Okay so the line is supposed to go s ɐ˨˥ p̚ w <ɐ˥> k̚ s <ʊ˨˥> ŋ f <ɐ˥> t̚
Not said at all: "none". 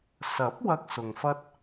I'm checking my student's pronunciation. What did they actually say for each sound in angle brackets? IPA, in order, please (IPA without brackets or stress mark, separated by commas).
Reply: ɐ˥, ʊ˨, ɐ˥